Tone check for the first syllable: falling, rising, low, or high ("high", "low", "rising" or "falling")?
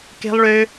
high